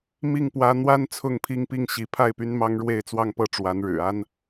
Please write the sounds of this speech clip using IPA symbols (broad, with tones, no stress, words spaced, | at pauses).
mi˥˩ŋ pwä˥ n̪wa˥n t͡sʰʊ˥˧ŋpʰi˥˧ŋpi˥˩ŋ ɕi˧˥ pʰa˥˩ɪ̯ py˥nmɑ˥ŋ ɻwe˥˧ɪ̯t͡swɑ˥˧ŋ pɤ˥˩ʈ͡ʂwa˧˥n ɻɻ̩˨˩ a˥n